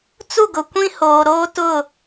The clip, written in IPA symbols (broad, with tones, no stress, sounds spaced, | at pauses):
t͡s u˦˨ ɡ ʊ˨ kʷ ĩ˦ h oː˨ ɾ oː˦ t ʊ˦˨